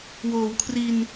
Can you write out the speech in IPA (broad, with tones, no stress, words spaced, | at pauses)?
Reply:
woː˩˦wkʰri˧n